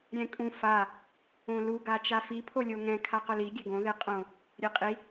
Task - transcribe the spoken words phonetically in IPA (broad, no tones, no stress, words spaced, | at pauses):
ɾʲɛ̃kʼũ fa | õlu ɡat͡ʃafi pʰolʲoŋɛ̃ kʰaqʊli ɡʲɛɡõ ðeqʼõ | ɾʲeqʼi